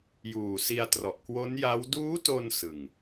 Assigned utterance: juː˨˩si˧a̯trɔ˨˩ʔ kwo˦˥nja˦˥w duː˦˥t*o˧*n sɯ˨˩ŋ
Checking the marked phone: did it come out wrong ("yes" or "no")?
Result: no